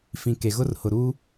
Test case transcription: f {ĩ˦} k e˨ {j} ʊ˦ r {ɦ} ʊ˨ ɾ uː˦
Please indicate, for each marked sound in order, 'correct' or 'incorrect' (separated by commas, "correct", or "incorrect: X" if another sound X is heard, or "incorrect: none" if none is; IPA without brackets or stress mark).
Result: incorrect: ĩ˨, incorrect: ɣ, incorrect: h